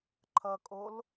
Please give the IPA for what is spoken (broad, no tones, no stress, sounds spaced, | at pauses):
ǃʰ ʌ kʼ o l